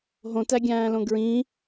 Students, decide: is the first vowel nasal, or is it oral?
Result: nasal